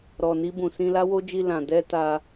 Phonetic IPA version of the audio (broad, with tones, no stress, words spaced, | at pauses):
ɾɔ˨ni˧bũ˨ sĩ˧la˦wo˦d͡ʒi˧ lã˨dɛ˧ ta˧